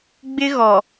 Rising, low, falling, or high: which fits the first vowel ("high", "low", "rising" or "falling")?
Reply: high